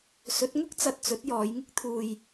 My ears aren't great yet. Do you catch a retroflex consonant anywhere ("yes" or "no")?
no